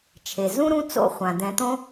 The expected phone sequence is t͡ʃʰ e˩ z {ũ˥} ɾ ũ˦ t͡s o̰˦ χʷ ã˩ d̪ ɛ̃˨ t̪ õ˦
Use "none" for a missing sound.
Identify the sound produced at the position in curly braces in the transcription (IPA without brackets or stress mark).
ũ˥